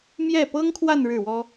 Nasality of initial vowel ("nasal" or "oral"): oral